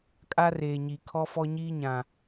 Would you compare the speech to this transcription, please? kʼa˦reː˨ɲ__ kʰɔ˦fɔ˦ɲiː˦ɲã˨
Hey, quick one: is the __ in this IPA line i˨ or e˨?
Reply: i˨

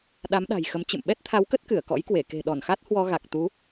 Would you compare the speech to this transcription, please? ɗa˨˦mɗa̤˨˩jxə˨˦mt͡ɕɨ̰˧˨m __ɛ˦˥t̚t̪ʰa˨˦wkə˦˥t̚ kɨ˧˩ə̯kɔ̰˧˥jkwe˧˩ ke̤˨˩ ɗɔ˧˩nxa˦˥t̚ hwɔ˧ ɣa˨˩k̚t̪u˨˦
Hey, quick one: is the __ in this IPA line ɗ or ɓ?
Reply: ɓ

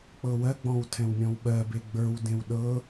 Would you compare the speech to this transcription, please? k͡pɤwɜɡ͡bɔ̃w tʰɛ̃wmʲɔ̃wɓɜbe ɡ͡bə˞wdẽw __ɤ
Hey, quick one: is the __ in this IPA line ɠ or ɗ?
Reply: ɗ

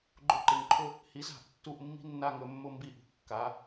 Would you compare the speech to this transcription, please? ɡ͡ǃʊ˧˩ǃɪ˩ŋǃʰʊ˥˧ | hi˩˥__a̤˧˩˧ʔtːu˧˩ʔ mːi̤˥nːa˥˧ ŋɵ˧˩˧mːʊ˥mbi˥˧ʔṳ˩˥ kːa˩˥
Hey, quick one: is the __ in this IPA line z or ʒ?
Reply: z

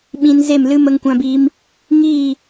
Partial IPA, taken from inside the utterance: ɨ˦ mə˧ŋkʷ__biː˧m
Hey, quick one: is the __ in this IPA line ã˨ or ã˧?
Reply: ã˧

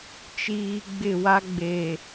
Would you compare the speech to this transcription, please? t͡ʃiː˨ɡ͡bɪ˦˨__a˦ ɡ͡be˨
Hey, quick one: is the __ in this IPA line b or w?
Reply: w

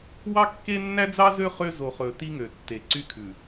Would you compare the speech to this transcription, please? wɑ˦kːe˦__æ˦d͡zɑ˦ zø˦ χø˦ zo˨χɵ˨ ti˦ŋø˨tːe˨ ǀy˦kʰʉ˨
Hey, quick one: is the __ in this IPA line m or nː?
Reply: nː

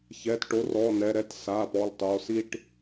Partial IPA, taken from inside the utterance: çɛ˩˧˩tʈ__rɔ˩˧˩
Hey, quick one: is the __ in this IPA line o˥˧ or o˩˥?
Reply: o˩˥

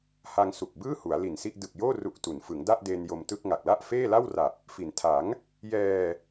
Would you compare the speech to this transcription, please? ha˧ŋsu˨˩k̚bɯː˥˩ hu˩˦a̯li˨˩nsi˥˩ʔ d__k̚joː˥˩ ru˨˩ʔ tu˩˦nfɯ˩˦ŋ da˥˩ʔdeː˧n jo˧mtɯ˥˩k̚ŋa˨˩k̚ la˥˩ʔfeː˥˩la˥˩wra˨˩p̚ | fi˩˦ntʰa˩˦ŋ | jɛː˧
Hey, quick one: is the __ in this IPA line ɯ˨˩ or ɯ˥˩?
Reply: ɯ˨˩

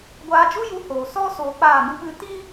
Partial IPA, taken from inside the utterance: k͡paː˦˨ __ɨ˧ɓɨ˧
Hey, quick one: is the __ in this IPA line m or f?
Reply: m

